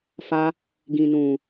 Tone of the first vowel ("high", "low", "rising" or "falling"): high